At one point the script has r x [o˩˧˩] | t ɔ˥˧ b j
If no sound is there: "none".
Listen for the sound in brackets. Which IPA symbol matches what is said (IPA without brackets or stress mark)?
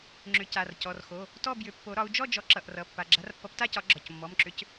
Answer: o˩˧˩